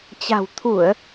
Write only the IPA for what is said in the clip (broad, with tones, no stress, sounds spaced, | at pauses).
t͡ɕ a̤˨˩ w t̪ʰ u˧˩˨ ə̯